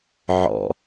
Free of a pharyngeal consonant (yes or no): no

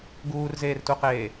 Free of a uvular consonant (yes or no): no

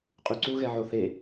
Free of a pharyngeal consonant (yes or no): no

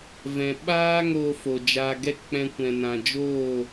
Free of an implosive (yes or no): no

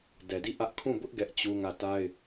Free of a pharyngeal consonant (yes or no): yes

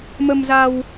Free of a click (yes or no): yes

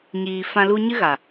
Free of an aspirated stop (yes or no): yes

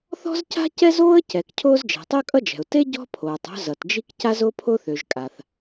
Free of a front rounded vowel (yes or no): no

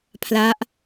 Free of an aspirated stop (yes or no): no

